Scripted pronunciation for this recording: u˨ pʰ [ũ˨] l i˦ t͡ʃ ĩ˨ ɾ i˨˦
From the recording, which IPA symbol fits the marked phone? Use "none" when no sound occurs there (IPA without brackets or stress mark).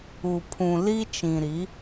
ũ˨